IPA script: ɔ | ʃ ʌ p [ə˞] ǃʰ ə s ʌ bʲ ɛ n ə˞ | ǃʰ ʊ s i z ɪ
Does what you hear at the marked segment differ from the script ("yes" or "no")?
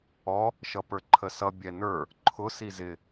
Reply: no